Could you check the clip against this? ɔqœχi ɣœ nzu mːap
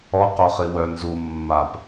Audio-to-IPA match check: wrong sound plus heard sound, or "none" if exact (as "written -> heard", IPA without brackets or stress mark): ɣ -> w